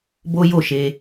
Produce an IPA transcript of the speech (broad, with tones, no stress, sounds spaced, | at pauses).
b o˦ j o˦˨ ʃ e˧